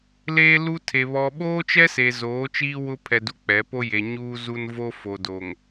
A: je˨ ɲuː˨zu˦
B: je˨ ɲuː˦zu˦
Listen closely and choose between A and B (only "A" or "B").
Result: B